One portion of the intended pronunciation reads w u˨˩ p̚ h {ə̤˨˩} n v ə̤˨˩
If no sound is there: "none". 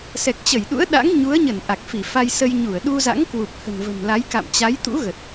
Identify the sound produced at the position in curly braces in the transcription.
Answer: ə̤˨˩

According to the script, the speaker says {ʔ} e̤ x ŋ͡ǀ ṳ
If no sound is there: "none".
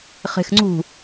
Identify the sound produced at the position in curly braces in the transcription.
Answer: χ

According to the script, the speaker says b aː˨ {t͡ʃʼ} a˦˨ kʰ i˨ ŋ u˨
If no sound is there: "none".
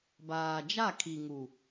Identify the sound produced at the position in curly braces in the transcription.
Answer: d͡ʒ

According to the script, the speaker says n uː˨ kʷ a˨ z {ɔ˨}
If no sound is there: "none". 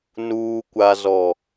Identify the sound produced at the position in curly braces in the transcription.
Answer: ɔ˨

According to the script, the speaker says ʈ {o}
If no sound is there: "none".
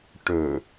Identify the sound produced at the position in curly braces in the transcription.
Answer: ɵ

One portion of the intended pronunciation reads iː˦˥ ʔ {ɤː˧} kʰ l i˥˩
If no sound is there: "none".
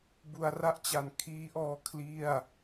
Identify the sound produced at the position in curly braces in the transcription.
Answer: ɔː˧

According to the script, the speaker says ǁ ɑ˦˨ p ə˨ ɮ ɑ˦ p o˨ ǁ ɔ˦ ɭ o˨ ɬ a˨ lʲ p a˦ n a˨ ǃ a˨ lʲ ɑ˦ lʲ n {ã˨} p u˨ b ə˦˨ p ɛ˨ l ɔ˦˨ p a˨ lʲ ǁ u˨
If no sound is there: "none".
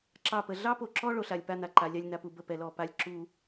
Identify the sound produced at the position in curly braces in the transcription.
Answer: a˨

